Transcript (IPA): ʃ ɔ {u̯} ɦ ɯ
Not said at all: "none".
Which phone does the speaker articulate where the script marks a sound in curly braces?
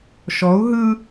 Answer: u̯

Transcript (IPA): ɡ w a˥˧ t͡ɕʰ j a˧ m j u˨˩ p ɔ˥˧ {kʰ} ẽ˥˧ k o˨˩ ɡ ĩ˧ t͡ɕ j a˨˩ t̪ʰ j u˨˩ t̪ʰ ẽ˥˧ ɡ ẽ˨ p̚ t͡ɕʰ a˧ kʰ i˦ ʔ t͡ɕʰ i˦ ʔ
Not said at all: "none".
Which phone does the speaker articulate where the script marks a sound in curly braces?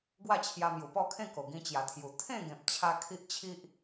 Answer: kʰ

